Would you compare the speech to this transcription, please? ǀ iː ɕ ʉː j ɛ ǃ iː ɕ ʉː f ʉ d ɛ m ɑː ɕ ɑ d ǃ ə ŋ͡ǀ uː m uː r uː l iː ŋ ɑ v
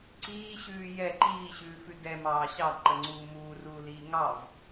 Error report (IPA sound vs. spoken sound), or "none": none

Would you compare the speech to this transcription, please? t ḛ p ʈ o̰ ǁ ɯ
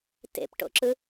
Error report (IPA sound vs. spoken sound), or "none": none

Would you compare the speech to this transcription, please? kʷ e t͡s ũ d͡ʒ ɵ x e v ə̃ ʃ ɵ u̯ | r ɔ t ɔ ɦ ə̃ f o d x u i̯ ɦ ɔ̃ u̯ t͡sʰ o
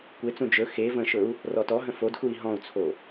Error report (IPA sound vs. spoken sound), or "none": none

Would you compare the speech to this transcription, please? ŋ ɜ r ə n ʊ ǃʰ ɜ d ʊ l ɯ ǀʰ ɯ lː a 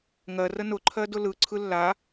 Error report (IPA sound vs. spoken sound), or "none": none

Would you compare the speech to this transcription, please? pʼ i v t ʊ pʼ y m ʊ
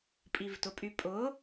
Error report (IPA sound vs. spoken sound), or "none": m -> pʼ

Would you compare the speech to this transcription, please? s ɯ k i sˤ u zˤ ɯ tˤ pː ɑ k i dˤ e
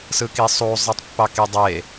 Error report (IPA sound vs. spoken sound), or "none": none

